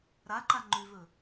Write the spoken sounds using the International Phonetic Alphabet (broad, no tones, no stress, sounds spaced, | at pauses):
ɾ a ǃ a ŋ͡ǃ ʉ v ɵ